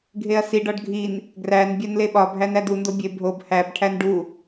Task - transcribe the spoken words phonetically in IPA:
ɡʱ e ɐ̯ s i ɖ ɒ ɖ ɡʱ i n | ɡ r æ n bʲ æ n l e ɓ ɒ bʱ æ n æ d u n d o bʲ e bʱ o b h æ b ʈʰ æ n ɖ u

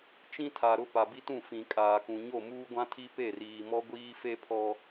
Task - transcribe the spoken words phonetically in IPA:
t͡ʃ ĩ˦ tʰ a˨ ɾ ʊ˦ p a˨ b i˦ t ũ˦˨ f ĩ˨ kʼ aː˨ k ũ˨ ɲ o˦˨ m uː˦ ɡʷ ã˦ tʰ i˦ p e˦˨ r iː˨ m ɔ˦ ɡʷ iː˦ f e˦ pʰ ɔ˦

